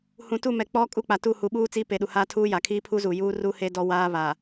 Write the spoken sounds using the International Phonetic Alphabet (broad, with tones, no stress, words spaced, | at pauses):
hũ˨tu˦˨mɛ˨ k͡pɔ˦ kʼu˦k͡pa˨ tu˦˨hu˨ɓuː˦ t͡siː˦pe˨ɗu˨ haː˦tʰuː˦ja˨ kʰiː˦pʰu˦zuː˨ juː˦ru˦ he˦dɔ˦ waː˦βa˨